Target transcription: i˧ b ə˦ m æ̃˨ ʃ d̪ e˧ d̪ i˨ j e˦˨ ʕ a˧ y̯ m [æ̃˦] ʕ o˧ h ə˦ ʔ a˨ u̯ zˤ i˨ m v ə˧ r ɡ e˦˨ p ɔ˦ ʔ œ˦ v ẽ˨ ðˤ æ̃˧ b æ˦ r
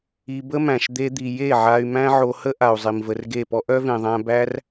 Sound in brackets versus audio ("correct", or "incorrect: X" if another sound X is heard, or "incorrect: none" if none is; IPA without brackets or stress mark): correct